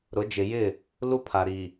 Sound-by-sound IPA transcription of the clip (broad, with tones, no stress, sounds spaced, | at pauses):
ɾ ʊ˨˦ d͡ʒ ɪ˨ j ɪ˦˨ | l u˦ pʰ a˨ ɾ i˨